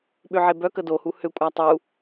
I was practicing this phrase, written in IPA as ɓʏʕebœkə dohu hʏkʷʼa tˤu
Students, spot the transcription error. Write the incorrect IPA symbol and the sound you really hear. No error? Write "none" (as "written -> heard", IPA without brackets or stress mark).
none